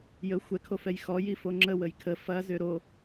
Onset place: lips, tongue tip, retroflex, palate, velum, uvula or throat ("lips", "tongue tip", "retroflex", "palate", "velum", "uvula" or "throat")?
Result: palate